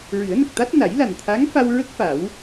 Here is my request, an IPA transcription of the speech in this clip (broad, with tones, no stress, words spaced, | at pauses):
ɹɨ˨˩˦ə̯nə˨˩k̚t̪a˦˥t̚ na˨˩˦jla˨˩nt̪ʰa˧˥ŋ fa˧wɹə˦˥k̚ fa˨˩˦w